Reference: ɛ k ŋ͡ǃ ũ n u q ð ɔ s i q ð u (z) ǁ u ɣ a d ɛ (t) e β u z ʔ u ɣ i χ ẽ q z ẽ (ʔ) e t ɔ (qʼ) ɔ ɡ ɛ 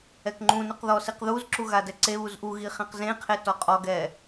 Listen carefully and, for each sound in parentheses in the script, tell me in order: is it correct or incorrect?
correct, incorrect, incorrect, correct

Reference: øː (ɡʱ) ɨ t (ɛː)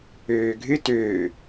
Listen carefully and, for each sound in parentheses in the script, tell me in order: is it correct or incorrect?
correct, incorrect

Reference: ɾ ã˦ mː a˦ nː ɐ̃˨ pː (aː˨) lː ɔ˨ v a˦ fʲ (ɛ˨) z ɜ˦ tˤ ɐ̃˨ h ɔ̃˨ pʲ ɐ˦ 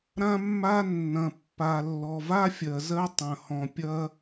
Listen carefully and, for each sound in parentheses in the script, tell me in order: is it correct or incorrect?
incorrect, incorrect

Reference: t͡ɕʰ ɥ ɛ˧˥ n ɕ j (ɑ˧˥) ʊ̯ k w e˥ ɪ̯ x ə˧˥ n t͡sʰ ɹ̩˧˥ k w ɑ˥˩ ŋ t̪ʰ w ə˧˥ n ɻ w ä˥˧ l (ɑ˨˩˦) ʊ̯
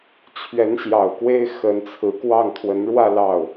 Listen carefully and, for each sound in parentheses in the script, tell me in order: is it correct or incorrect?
incorrect, incorrect

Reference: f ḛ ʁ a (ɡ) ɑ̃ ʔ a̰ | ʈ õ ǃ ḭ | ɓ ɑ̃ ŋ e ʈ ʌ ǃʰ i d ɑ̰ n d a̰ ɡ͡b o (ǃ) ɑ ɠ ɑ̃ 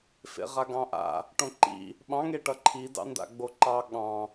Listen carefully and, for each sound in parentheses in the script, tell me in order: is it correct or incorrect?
correct, correct

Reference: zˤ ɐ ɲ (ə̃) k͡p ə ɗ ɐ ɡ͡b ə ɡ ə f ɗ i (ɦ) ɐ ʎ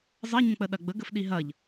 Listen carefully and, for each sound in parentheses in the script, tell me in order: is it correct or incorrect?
correct, correct

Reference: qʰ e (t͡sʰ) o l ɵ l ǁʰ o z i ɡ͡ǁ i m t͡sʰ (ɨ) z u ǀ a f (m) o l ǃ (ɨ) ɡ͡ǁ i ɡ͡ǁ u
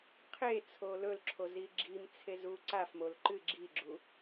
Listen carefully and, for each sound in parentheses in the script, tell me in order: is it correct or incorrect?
correct, incorrect, correct, correct

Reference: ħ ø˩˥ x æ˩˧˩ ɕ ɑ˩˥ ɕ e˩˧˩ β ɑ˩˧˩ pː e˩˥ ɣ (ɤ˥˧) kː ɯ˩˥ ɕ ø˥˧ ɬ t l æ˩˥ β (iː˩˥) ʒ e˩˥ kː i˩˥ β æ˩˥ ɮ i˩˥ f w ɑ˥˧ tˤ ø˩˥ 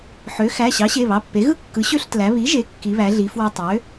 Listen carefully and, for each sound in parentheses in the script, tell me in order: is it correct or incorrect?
incorrect, incorrect

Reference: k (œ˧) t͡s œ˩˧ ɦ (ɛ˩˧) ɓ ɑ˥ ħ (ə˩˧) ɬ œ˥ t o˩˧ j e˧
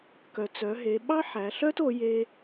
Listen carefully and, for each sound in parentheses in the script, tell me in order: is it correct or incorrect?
incorrect, incorrect, incorrect

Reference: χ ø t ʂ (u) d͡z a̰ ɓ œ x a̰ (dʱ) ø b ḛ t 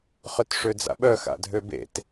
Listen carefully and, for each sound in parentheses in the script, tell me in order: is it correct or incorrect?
incorrect, correct

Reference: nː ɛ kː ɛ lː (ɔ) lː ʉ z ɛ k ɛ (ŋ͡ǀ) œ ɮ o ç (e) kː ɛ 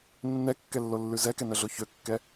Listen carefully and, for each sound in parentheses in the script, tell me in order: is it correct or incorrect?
incorrect, incorrect, incorrect

